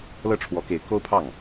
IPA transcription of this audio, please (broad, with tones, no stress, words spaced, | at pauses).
lɤ˥˩ʈ͡ʂʰwɔ˧˥ke˧˥ɪ̯ ko˥ʊ̯pʰɑ˥˩ŋ